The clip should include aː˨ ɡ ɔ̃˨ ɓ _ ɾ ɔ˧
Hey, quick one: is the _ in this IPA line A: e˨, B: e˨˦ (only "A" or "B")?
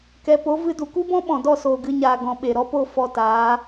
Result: A